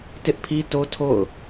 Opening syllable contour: high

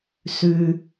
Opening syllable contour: high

